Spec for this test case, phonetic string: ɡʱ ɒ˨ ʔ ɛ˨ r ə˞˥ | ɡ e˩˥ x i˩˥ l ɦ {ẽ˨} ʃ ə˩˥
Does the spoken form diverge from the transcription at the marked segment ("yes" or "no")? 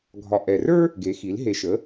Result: yes